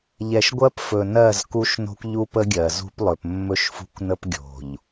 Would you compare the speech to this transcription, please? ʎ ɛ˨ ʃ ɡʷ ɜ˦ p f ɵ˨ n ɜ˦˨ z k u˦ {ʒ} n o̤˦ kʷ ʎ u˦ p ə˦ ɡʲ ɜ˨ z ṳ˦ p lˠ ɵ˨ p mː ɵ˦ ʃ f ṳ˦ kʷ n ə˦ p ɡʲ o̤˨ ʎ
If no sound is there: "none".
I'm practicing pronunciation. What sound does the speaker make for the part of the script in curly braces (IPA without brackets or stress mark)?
ʃ